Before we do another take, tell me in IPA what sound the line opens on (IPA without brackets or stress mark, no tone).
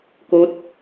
k